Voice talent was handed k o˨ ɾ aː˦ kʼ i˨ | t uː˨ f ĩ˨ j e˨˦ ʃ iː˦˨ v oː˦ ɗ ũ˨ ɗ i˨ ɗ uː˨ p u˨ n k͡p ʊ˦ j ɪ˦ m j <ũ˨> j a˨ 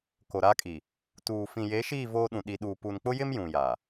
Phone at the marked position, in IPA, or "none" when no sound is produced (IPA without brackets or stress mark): ũ˨